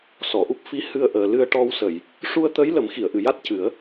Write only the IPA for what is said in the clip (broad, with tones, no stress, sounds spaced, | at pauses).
s ɔ˨˩˨ ʔ u˦˥ p̚ f i˧˥ h ɨ˧ ə̯ ʔ əː˨˩ l ɨ˧ ə̯ ʈ ɔ˧ w s ə˨˩˨ j | ʂ u˧ ə̯ t̪ ə˧˥ j l ə˨˩˦ m x i˨˩˨ ə̯ ʔ ɨ˨˩˨ j a˦˥ t̚ c ɨ˨˩˦ ə̯